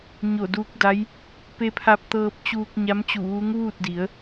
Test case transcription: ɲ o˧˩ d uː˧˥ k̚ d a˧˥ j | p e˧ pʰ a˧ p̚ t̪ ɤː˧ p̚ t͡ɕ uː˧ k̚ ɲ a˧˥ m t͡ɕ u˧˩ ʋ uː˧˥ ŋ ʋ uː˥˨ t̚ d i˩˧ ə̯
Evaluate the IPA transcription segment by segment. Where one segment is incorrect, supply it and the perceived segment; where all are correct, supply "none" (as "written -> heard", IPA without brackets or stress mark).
none